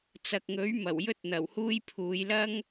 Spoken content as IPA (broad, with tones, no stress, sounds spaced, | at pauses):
t͡s ɐ˨ k̚ ŋ ɵ˨˥ ɥ m ɐ˨˩ w j ɵ˧ t̚ n̪ ɐ˨˩ w h uː˧ j pʰ uː˨˧ j l ɐ˥ ŋ